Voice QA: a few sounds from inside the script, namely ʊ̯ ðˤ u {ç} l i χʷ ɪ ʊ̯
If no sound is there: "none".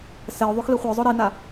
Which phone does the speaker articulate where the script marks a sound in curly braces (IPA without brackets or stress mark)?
x